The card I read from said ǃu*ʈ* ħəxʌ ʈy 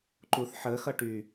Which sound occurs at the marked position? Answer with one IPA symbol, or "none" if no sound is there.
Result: θ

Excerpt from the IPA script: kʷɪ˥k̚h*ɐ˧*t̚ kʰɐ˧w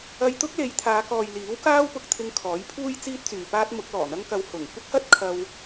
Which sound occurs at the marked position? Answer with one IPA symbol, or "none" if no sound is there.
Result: ɐ˥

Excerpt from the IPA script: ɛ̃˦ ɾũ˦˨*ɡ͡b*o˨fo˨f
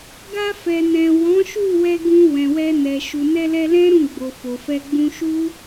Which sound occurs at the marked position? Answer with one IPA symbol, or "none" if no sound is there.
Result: ɡ͡b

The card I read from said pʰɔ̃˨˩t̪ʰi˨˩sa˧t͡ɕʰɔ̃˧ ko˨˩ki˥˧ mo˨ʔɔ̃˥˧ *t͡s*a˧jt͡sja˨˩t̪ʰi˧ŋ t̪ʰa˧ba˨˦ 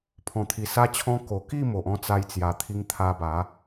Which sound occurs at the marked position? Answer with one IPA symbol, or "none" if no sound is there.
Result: t͡s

